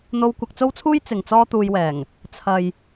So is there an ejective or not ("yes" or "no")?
no